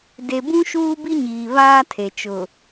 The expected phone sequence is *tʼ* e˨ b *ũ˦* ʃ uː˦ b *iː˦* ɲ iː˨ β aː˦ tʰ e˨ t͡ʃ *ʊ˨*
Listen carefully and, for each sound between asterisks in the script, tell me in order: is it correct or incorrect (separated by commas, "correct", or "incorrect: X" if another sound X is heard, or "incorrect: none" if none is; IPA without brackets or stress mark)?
incorrect: d, correct, incorrect: i˦, correct